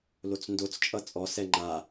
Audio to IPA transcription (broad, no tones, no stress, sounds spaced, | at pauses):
l o t͡s n d o t͡s t͡ʃʼ ʌ t͡sʼ ɔ s ɛ ŋ͡ǃ a